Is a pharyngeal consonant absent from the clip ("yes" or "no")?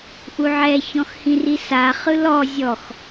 no